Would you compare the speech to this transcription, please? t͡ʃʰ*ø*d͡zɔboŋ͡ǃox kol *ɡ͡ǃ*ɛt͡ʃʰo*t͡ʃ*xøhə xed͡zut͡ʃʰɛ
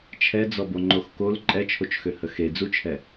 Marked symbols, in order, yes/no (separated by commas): no, no, yes